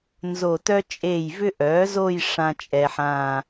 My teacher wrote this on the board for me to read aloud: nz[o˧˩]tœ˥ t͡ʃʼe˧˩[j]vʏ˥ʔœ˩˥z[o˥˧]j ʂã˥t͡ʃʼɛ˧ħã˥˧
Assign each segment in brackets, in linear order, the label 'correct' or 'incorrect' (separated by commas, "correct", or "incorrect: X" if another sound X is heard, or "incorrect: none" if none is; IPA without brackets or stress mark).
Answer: correct, correct, correct